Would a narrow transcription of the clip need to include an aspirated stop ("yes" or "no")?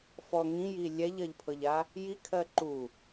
yes